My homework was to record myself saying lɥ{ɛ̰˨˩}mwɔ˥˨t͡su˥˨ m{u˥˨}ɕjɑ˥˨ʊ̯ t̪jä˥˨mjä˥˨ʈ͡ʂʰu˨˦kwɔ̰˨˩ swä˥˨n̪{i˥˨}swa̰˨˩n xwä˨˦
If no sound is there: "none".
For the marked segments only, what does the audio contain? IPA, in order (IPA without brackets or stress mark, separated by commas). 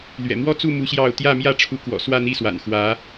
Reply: ɛ̰˨˩, u˦, i˥˨